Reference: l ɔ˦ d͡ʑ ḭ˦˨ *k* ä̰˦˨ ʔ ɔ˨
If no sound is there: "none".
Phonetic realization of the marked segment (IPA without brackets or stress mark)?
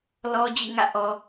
ŋ